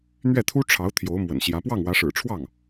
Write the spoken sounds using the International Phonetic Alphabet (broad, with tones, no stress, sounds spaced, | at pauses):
n̪ ɥ ɛ˥˩ t̪ʰ u˥ ʈ͡ʂʰ ɑ˧˥ ʊ̯ t̪ʰ j o˧˥ ʊ̯ m w ə̰˨˩ n ɕ j ä˧˥ p w ɑ˥˩ ŋ w ä˧˥ ʂ ɻ̩˨˩ ʈ͡ʂʰ w ɑ˥˩ ŋ